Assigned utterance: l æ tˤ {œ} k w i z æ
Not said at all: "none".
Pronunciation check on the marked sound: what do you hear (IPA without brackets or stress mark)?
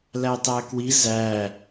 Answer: æ